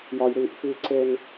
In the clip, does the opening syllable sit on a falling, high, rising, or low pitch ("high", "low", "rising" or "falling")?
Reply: low